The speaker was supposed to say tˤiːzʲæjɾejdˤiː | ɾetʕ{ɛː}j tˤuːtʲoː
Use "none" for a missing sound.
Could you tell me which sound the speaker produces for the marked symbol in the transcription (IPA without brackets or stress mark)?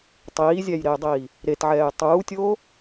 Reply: ɛː